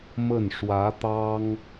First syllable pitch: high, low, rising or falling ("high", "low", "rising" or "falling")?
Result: falling